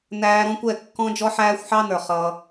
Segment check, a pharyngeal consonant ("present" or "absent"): present